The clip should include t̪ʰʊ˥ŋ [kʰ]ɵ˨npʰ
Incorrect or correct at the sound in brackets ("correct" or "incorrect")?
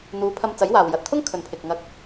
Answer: correct